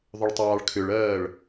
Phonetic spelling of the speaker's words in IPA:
ðˤʏɭtˤɑːɭkʰʏɭɜːɭ

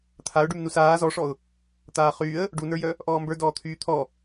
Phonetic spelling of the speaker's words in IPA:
t̪ʰaʊ̯ɖym nusaː zɔʂɔʊ̯ | t̪aːχyːə̯ | ɖunə˞jœ | ʔɔːmbə˞ dɔːt̪ʰyːt̪ʰɔ

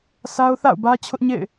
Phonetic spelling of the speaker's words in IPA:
sʰa˦ʊ̯ θa̰˦˨ʊ̯bä˦t͡ɕʰʊ˦ʔ ɲḛ˦˨ɪ̯

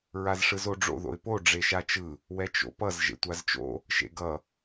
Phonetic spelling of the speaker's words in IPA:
ɹazʂɯzoɖ͡ʐo̰ ðo̰ɪ̯po ɖ͡ʐeʃat͡ʃɯ | wɛt͡ʃo̰pʌz ʒḛtʷazt͡ʃo̰ | ʃḛɡʌ

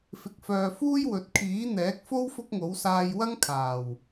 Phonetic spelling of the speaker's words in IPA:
fɪ˨k̚fœː˨fuː˥j wɵ˨˥t̚ kʰiː˨˥n̪ɛː˨˥k̚fo˥w fʊ˥k̚ŋo˨˥w saː˧j wɐ˥ŋkʰaː˨˩w

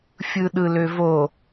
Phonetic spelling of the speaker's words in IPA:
fʲɯɗɯløvo

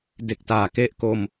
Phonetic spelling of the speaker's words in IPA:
de˨˩k̚ taː˨˩ke˦˥ʔko˧m

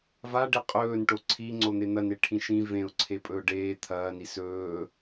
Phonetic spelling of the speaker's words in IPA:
vaɖe qʼɵːnʈo ǀʰiŋ͡ǀon̪e n̪ɐneʈʰĩ ʃĩ vẽʊ̯ǀʰepʼɵʊ̯ ɖeː t̪ʰɐːni sɵː

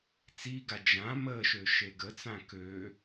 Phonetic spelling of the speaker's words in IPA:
t͡siɡa d͡ʒã məʃø ʃeɡət͡sã kø

